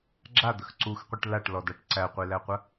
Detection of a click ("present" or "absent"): present